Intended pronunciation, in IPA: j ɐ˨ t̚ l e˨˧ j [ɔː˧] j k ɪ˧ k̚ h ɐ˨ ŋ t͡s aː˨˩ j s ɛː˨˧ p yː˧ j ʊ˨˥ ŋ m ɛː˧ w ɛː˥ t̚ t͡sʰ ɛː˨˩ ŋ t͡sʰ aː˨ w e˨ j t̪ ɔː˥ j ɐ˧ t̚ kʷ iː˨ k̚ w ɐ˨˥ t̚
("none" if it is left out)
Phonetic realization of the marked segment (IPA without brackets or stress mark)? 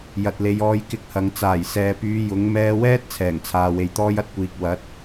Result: ɔː˧